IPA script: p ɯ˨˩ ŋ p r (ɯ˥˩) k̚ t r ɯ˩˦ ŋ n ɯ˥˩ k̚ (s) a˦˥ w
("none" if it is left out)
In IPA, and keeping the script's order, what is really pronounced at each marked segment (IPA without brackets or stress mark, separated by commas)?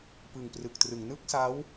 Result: ɯ˨˩, s